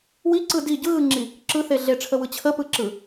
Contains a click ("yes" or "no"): yes